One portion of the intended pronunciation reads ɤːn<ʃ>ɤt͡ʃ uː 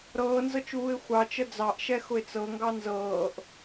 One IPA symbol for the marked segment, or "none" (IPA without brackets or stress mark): z